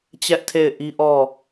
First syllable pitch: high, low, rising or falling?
high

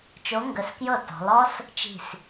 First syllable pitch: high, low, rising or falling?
rising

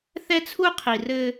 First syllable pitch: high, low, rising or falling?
high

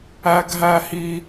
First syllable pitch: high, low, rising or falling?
high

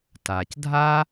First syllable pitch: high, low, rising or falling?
low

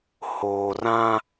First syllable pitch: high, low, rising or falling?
low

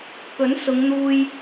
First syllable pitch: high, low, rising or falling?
rising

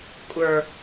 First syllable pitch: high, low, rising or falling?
low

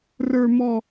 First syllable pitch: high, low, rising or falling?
low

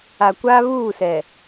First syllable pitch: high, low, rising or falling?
low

